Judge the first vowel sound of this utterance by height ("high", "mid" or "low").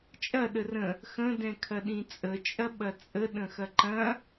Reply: low